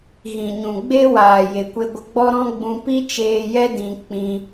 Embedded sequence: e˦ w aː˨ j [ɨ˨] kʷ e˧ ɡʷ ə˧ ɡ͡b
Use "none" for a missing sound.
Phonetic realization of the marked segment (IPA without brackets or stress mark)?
e˨